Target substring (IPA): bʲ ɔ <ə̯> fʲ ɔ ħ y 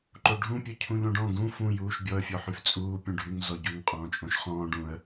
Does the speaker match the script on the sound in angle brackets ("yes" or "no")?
yes